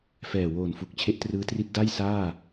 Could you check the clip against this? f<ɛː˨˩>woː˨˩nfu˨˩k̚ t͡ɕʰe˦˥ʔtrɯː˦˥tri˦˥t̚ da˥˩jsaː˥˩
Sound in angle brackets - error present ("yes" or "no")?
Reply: no